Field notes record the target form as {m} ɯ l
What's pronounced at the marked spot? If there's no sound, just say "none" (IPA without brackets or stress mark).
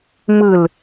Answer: m